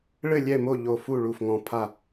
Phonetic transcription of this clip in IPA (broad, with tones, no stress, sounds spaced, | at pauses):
ɭ ɘ˥˨ lʲ ɛ˥˨ m o˥˨ ʎ o˧˩ f u˥˨ ɭ u˧˩ f ŋ ɔ̃˧˩ pʰ a˥˨